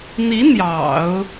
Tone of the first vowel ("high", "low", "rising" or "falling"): rising